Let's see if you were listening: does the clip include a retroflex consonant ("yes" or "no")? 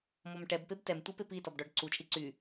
yes